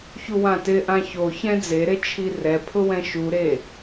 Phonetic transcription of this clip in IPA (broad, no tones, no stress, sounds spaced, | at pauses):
ç u w ã t ɪ ʔ ã ç o ç ɛ̃ d͡z e ɾ e t͡ʃʰ i r ɛ pʰ ʊ w ɛ̃ ʃ u ɾ e